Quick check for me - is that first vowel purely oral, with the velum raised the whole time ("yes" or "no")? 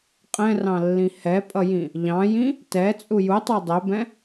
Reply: no